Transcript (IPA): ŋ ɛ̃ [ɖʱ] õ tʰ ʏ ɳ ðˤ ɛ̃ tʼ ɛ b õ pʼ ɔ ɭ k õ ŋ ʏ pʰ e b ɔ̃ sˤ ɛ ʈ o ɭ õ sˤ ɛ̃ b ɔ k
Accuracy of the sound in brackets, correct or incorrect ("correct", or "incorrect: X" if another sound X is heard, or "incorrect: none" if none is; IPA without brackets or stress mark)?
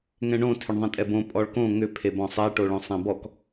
incorrect: ɳ